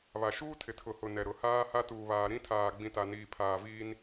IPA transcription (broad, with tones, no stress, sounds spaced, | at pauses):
β a˨ ʃ uː˦ tʰ ɪ˨ tʰ ʊ˨ h ʊ˨ n ɛ˨ ɾ ʊ˨˦ h aː˦ h a˦ t uː˨ β aː˨ ɾ ĩ˦ tʰ aː˨ ɡ͡b ĩ˨ t a˨ n iː˨ pʰ aː˨ v iː˦ n